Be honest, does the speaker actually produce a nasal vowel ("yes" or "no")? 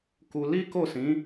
yes